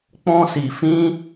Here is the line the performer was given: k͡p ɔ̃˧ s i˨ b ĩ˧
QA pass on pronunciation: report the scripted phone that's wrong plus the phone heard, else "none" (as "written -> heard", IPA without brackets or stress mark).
b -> f